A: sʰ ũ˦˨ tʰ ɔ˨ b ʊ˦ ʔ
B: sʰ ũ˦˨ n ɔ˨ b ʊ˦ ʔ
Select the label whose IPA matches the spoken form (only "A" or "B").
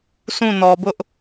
B